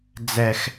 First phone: d͡z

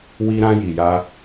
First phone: w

